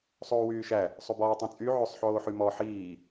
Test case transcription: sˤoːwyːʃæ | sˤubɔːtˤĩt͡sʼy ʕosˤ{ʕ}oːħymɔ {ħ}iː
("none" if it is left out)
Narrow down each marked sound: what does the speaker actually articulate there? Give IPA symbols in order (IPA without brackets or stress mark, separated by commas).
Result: ħ, ħ